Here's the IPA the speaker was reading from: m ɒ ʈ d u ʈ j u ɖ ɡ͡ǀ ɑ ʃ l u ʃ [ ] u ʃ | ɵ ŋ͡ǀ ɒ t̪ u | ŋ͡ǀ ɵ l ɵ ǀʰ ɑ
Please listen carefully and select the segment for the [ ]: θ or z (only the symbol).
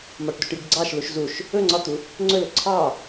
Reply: z